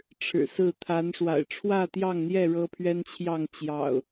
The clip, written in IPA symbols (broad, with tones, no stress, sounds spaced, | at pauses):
ʈ͡ʂʰ ɻ̩˨˩ s ɹ̩˥˨ t̪ʰ a˨˦ n ʂ w a̰˨˩ ɪ̯ ʈ͡ʂʰ w ä˥˨ t̪ j ɑ˥˨ ŋ n̪ j ɛ˥˨ ɻ ɤ˦ pʰ ɥ ɛ˦ n t͡ɕʰ j ɑ˥˨ ŋ t͡ɕ j ɑ̰˨˩ ʊ̯